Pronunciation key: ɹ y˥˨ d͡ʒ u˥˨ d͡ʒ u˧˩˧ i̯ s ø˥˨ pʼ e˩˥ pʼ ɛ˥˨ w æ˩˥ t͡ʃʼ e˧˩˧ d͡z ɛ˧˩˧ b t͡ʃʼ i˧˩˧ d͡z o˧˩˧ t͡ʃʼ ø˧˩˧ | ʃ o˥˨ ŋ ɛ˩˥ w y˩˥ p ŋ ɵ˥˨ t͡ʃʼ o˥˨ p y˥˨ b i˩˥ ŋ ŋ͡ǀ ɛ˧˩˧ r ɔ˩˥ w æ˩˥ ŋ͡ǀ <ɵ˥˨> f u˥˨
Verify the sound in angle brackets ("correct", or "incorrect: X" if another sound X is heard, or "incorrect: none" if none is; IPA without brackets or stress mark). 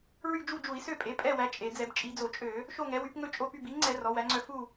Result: incorrect: œ˥˨